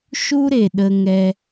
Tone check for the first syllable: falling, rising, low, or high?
high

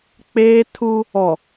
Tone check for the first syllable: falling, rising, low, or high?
high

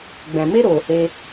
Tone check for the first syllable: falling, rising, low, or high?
low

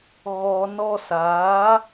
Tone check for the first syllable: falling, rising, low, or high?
low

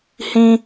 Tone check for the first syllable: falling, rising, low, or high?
high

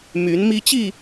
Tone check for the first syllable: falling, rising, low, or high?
rising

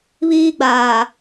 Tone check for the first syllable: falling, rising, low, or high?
high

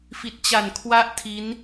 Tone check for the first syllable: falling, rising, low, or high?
low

